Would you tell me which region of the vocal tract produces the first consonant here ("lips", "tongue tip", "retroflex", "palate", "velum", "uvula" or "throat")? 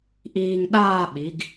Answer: throat